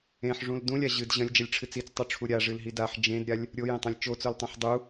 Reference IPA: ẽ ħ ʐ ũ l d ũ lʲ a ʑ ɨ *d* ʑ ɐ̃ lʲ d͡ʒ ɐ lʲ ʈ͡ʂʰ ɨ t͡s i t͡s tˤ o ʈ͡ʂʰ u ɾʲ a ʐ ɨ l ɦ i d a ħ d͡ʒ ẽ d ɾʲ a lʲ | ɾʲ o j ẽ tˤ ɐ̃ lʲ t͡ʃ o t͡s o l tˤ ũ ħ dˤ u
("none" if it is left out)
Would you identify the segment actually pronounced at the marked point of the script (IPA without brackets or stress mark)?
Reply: d